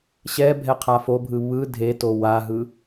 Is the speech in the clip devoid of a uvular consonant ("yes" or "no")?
no